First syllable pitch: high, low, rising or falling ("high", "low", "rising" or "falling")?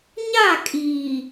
falling